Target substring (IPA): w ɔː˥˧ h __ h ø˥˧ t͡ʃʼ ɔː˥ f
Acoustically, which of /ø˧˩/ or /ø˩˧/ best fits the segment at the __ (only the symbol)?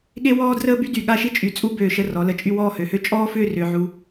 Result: ø˩˧